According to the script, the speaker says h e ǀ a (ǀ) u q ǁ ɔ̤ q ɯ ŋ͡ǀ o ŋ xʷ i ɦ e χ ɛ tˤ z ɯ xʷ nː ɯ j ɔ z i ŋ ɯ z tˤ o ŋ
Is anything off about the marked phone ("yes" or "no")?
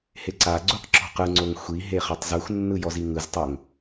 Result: yes